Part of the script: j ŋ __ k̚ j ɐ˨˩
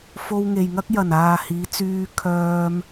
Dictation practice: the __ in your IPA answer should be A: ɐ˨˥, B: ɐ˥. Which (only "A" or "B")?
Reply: B